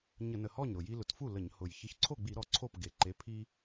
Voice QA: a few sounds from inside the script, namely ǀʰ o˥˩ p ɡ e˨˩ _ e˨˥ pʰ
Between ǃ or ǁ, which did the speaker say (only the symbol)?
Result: ǃ